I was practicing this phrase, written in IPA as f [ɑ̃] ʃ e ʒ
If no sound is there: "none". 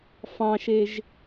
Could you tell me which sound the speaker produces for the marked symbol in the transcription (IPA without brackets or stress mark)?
ɑ̃